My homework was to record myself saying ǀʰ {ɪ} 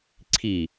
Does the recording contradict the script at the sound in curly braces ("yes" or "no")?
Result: yes